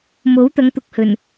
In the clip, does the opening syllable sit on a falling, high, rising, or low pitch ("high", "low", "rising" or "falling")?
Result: rising